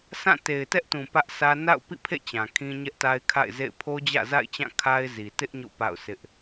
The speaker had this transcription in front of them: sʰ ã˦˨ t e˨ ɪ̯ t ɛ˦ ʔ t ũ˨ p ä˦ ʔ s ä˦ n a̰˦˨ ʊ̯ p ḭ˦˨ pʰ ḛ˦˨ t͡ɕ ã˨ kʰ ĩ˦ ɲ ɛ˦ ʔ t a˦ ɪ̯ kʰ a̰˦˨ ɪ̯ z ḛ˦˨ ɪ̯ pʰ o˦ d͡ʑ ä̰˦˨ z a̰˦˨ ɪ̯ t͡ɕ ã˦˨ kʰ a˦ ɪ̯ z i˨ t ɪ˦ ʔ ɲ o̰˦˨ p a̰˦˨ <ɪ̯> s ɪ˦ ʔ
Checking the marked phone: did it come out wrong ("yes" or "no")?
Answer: yes